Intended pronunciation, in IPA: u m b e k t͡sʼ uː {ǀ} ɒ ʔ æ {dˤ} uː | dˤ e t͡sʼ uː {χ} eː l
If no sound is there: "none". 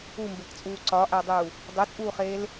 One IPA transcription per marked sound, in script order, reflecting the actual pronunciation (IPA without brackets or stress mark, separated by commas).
ǀ, dˤ, χ